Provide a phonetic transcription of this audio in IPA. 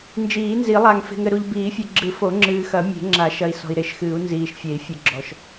n d͡ʒ iː˨˩˦ n z i˨˩˦ lˠ a˨ ŋ f e̤˨ ŋ ɘ˨ ɾ u˨ ʎ b iː˨˩˦ fʲ e˨ ɡ͡ǁ ɨ˨˩˦ f o˨˩˦ ŋ͡ǁ ɨː˨ x ɐ˨˩˦ mʲ e̤˨˩˦ ŋ͡ǁ a˨˩˦ ʃ ɐ˨ i̯ s ɔ̤˨ i̯ ɾ e˨˩˦ ʃ x ɨː˨˩˦ u̯ n z iː˨ ʃ fʲ e˨˩˦ i̯ fʲ ɨ˨ ɡ͡ǁ ɔ˨ ʃ

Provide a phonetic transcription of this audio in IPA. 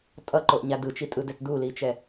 tʼ ʌ ǃ o ʔ ɲ a d ɯ t͡ʃ i tʼ ɯ d ɛ t d u l i t͡ʃ ɛ

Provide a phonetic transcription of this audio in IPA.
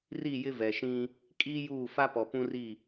r i˦˨ j ɪ˦ v ɛ˨ ʃ ĩ˦ | kʼ iː˦ j uː˦˨ f a˦ p ɔ˨ p ũ˦ r i˦˨

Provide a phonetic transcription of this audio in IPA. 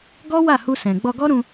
ɡ ɔ˦ w a˦˨ h u˧ s ɛ̃˨ ɡ͡b ɔ˧ ɡ ɔ˦ ɾ ũ˧

